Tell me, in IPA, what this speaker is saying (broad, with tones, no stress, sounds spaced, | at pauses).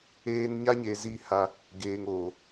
eː˦ n ɲ a˦ ɲ eː˨ z i˦˨ h a˦ | ɡ eː˨ ŋ oː˨